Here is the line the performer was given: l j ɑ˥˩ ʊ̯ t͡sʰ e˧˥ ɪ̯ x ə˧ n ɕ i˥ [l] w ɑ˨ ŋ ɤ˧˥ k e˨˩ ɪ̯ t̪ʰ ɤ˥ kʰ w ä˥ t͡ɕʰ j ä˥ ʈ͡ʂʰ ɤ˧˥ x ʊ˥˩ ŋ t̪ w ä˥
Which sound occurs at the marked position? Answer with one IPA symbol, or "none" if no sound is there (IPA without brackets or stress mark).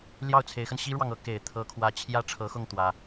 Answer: ɻ